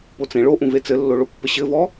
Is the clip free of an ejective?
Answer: yes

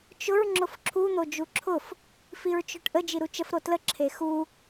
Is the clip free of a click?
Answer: no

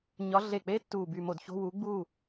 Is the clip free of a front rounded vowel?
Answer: no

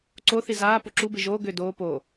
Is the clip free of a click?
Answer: no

